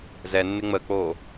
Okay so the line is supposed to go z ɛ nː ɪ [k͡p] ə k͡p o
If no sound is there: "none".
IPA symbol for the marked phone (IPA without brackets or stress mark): ŋ͡m